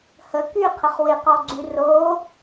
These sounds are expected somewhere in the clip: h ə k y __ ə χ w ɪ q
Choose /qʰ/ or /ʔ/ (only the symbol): qʰ